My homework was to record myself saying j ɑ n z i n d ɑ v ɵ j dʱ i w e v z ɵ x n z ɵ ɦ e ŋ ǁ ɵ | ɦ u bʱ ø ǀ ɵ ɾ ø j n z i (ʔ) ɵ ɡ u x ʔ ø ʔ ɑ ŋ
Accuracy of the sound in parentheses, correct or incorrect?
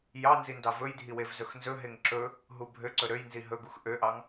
incorrect